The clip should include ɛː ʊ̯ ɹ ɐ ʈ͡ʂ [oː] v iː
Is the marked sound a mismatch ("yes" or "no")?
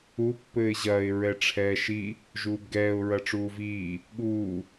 yes